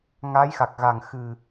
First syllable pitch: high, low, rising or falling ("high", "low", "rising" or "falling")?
rising